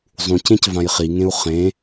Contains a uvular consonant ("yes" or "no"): yes